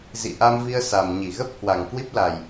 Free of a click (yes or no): yes